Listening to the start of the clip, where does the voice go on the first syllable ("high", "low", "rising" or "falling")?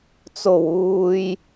low